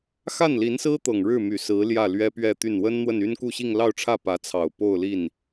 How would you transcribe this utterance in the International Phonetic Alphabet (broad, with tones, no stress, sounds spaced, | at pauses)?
x a˥˩ n l i˧˥ n s ɹ̩˥ t̪ ɤ˨˩ ŋ ɻ ɻ̩˥˩ m y˨˩ s ɹ̩˧˥ l j ä˥˩ l ɥ ɛ˥ p ɥ ɛ˥˧ t̪ y˥˩ n w ə˥ n n̪ w ə˥˩ n y˥ n k u˥˧ ɕ i˥˧ ŋ l ɑ˥˧ ʊ̯ ʈ͡ʂʰ ä˥˩ p ä˧˥ t͡sʰ ɑ˨˩ ʊ̯ p o˥˧ ʊ̯ l i˥˩ n